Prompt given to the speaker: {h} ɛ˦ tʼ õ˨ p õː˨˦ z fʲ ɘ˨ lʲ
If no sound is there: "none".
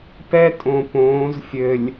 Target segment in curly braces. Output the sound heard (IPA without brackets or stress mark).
p